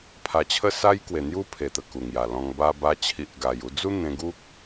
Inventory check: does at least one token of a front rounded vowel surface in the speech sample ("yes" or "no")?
no